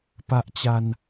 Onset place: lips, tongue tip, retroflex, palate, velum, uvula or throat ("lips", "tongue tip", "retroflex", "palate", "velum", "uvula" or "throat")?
lips